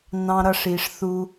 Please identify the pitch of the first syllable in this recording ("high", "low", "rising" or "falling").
low